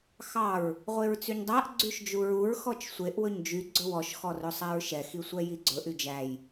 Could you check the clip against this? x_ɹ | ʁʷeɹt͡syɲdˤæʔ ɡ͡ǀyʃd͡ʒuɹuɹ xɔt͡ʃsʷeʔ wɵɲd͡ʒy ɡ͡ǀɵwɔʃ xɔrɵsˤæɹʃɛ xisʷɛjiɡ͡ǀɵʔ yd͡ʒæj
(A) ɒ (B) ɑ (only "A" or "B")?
B